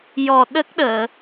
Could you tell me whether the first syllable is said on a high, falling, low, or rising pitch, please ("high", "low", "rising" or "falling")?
low